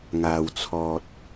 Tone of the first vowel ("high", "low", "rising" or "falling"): low